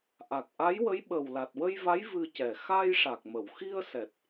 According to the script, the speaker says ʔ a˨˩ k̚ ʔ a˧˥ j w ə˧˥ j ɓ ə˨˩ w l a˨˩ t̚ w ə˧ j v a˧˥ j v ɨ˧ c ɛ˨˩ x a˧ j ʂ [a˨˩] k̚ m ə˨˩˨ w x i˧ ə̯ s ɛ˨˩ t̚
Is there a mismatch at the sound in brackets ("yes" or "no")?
no